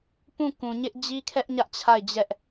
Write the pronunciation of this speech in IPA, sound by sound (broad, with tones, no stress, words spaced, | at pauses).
pũ˦˨kũ˨ɲɪ˦ʔ d͡ʑi˦kʰɛ˦ʔɲä˦ʔ t͡ɕʰa˦˨ɪ̯d͡ʑɛ˦ʔ